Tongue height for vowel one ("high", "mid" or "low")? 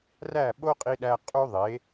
low